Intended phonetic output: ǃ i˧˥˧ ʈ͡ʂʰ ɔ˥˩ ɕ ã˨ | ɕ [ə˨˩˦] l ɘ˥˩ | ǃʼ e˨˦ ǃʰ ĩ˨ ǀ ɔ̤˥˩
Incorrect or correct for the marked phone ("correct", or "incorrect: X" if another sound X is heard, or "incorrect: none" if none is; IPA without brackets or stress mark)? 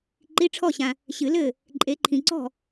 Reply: incorrect: ɨ˨˩˦